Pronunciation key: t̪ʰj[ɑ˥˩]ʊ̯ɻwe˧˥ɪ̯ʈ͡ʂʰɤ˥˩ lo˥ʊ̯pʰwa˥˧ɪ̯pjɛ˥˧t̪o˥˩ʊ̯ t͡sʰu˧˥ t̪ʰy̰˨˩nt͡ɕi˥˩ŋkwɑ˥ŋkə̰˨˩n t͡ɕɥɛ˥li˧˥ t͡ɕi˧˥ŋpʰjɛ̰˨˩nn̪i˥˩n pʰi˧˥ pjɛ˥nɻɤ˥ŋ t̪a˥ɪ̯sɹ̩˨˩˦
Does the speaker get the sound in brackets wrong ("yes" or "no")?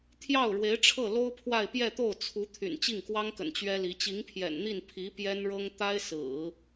no